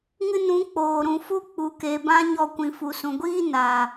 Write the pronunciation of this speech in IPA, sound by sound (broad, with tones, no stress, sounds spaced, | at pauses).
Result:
ŋ ɨ˧ n ũ˨˦ k͡p oː˨ ɾ ũ˨ f u˦ k͡p u˨ k e˨ b ã˦ ɲ ɔ˧ kʷ ĩ˨ f u˨ s ũ˨ ɡʷ iː˦ n a˨